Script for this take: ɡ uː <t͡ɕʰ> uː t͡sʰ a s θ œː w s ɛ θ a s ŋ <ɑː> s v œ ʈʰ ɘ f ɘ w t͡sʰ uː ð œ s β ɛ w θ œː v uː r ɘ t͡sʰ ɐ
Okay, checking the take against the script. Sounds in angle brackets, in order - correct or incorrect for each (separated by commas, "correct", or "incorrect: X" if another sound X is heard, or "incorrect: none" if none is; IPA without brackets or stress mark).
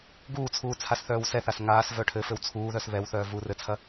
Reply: incorrect: t͡sʰ, incorrect: aː